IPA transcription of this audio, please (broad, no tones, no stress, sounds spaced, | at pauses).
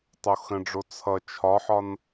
tˤ o x ə̃ ɖ͡ʐ o t͡sʰ ʌ t͡ʃʰ ɒ ħ ɒ n